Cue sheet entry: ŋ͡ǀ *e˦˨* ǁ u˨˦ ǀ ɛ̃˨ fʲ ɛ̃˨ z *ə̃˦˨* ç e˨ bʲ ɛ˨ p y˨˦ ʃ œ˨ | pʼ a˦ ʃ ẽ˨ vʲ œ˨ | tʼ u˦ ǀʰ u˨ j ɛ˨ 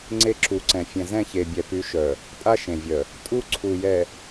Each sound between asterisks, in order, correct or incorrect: incorrect, incorrect

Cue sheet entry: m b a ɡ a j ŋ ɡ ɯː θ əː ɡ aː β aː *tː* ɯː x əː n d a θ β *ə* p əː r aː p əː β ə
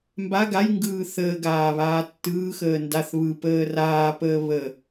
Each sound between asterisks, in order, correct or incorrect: correct, incorrect

